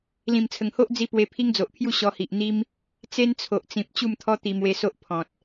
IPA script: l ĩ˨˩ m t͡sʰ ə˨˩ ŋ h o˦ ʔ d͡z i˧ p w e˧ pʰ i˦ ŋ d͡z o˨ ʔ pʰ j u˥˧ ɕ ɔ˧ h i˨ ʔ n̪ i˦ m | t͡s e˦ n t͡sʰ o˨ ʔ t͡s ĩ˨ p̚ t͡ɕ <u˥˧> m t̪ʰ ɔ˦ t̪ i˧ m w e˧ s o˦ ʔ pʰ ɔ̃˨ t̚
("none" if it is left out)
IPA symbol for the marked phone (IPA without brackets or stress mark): u˥˧